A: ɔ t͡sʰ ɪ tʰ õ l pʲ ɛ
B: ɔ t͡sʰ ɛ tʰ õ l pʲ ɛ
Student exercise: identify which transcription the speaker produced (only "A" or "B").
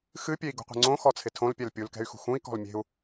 A